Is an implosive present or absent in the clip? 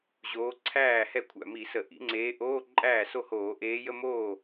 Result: absent